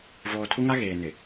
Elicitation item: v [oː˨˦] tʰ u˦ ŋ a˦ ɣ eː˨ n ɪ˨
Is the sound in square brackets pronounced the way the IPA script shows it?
no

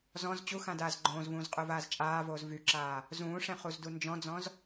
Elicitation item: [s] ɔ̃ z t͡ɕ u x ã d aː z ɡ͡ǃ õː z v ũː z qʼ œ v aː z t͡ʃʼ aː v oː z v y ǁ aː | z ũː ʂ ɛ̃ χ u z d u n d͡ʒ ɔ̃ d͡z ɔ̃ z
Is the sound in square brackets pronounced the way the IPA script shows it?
no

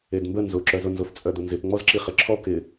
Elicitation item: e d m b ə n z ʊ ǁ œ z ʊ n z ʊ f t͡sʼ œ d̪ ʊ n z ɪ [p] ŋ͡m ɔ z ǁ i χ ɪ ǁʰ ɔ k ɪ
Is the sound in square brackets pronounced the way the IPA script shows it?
yes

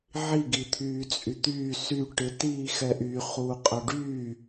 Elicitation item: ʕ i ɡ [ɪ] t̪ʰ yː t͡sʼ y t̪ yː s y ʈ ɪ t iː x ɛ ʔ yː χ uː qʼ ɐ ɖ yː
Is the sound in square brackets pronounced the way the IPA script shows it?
no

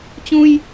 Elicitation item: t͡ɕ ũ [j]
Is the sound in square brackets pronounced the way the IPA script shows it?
yes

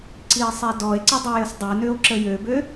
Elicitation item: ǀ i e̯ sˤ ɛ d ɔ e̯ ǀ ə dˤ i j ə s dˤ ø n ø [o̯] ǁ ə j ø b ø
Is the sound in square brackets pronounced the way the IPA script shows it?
yes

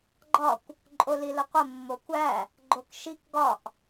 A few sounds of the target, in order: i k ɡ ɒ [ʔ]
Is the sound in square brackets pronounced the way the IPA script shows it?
yes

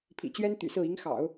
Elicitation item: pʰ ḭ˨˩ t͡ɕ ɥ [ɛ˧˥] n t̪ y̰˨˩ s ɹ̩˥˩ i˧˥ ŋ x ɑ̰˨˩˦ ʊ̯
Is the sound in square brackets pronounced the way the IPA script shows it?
no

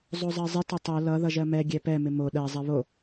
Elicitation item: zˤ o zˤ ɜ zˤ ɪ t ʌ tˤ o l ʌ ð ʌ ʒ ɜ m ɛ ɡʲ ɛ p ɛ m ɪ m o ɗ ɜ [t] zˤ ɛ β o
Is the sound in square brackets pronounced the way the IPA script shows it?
no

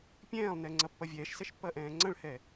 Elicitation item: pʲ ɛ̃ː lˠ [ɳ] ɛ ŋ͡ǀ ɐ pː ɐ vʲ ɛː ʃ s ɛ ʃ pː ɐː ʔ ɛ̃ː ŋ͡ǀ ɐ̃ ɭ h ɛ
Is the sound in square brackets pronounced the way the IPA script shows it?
no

